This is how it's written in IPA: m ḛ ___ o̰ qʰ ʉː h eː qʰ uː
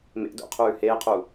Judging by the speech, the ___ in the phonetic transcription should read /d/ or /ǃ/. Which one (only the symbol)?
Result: d